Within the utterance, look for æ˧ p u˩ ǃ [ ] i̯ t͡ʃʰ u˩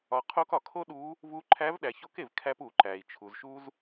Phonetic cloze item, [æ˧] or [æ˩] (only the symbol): æ˩